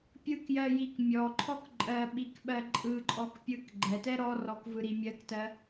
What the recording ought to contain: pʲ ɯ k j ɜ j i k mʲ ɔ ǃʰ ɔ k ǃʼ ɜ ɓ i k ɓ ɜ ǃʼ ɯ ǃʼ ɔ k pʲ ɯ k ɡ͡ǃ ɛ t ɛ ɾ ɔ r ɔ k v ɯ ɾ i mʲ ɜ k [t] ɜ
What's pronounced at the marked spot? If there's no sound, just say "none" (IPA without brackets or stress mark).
t